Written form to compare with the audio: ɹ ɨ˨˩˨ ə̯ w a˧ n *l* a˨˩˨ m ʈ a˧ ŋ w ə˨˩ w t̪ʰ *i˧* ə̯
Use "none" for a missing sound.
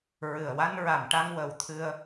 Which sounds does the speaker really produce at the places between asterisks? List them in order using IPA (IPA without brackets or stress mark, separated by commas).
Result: ɹ, ɨ˧